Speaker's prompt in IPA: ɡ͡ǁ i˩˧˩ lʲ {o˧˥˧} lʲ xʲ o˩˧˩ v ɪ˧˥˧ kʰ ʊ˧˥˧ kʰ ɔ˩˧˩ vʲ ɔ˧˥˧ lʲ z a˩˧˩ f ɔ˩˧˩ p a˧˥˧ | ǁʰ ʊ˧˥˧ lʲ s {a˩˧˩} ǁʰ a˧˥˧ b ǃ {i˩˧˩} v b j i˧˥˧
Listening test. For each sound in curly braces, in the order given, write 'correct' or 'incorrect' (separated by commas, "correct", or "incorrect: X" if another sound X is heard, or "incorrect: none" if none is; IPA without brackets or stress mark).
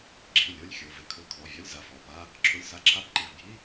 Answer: correct, incorrect: a˧˥˧, correct